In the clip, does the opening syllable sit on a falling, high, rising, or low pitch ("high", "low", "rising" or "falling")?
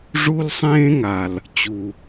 high